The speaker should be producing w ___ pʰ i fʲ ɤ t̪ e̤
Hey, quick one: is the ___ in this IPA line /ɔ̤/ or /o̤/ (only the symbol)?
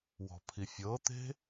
ɔ̤